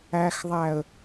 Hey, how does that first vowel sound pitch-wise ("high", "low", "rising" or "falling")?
low